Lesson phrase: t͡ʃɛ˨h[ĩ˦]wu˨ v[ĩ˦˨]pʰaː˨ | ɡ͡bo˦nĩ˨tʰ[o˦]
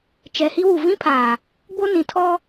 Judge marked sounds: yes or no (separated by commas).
no, no, no